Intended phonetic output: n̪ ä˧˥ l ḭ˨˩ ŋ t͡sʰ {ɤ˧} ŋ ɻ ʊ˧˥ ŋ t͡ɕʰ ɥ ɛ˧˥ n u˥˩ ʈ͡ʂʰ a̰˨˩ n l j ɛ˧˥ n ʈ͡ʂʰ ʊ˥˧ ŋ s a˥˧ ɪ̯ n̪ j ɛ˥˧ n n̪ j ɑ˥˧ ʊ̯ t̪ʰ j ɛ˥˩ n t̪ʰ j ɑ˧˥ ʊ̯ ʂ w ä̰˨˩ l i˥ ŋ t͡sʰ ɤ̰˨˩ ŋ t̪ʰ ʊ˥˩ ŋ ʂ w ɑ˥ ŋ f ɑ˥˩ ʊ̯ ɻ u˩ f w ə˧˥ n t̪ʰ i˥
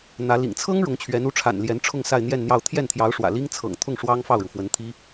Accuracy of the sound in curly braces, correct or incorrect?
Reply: incorrect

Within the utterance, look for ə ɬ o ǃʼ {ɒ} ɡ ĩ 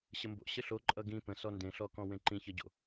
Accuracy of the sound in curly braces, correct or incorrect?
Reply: incorrect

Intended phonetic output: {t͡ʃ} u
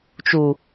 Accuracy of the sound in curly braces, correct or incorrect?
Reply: correct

